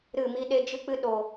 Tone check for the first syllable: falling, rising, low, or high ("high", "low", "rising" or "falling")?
falling